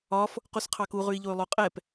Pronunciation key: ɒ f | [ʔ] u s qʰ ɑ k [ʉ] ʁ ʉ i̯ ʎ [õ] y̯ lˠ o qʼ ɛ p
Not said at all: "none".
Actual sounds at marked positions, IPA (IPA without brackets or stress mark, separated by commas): q, u, o